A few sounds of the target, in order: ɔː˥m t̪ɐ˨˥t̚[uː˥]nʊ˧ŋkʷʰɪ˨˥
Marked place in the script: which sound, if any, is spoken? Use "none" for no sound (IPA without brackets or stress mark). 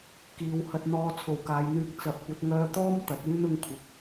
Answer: yː˥